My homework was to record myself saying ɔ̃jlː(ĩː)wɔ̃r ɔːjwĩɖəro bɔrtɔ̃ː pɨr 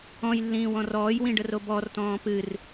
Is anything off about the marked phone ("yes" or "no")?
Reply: no